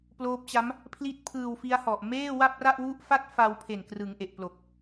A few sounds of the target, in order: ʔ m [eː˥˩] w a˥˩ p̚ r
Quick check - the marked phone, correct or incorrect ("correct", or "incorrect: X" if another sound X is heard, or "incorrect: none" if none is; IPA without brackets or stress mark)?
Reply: correct